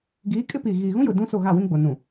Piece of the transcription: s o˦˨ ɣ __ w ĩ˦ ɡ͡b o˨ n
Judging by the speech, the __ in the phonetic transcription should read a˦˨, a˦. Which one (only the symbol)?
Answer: a˦˨